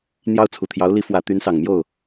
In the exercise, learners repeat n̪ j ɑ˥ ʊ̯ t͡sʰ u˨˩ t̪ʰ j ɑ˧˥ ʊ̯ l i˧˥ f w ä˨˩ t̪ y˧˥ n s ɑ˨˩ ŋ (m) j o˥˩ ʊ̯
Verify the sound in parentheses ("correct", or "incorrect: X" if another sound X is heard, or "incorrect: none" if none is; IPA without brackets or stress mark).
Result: correct